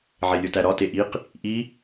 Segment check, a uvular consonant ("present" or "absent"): present